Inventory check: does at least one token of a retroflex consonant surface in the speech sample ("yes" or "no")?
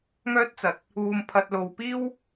no